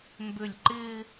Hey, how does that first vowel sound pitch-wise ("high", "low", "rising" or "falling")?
falling